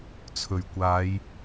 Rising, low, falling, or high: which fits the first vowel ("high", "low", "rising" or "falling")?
low